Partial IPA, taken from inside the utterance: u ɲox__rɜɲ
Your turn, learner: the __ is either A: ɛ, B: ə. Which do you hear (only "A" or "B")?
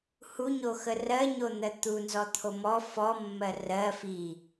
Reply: B